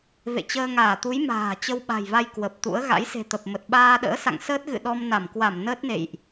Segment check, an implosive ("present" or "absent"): present